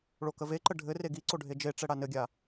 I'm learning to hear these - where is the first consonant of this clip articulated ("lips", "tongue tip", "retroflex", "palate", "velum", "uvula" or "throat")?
retroflex